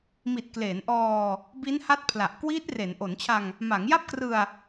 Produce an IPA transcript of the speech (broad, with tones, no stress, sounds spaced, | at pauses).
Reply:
m i˨˩ t̚ k l eː˩˦ n ʔ ɔː˧ | b i˦˥ n h a˦˥ t̚ pʰ l a˨˩ ʔ k w iː˦˥ t̚ r e˩˦ n ʔ o˩˦ n t͡ɕʰ a˧ ŋ | m a˩˦ ŋ j a˥˩ p̚ k r ɯ˧ a̯